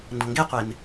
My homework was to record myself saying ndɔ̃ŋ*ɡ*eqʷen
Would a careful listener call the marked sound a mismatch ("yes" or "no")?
no